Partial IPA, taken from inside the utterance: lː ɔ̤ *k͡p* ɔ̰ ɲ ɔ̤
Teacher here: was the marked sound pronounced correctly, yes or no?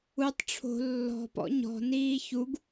no